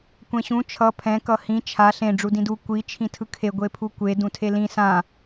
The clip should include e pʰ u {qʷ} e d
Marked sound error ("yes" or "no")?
yes